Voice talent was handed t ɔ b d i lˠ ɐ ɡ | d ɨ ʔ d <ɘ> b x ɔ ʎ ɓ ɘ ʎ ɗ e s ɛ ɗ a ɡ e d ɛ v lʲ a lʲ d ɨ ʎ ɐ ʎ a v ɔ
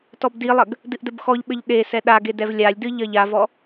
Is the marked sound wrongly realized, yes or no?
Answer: no